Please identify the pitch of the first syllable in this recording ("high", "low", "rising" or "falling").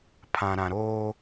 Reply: low